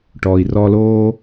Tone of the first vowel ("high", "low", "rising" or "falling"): low